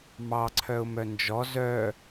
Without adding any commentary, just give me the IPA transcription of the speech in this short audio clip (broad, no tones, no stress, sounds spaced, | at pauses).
m ɑ ǀʰ œ ʊ̯ m œ n d͡ʒ ɔ z œ